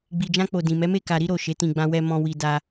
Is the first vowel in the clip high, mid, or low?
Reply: high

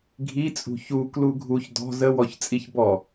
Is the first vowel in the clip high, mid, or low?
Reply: high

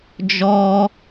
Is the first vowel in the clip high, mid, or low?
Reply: mid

